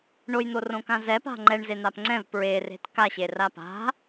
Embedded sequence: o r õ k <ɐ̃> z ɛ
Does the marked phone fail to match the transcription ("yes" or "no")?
yes